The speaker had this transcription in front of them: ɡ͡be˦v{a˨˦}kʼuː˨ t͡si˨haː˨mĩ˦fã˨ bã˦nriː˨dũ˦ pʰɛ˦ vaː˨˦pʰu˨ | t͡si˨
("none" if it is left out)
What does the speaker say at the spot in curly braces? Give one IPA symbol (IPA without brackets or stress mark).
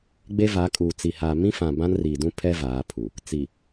a˨˦